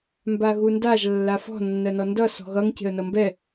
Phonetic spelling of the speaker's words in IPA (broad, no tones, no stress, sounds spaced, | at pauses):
m b a ɣ u n d a ʒ lː a f ɔ̤ nː ɜ n ɔ n d ʌ s ɔ̤ ɣ ʌ ŋ c e̤ ə̯ n ʌ m b ɛ